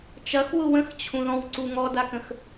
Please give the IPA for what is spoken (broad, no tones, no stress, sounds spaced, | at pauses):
t͡ʃ ɐ x w ʊ w ə̃ x t͡ɕʰ ũ ð ɔ̃ w ǀ u ŋ ɔ d a k ə̃ x